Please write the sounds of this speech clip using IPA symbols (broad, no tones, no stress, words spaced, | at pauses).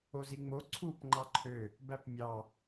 oziŋ͡mo ǀʰup ŋ͡ǃɑǃʰø | bæpmʲɑ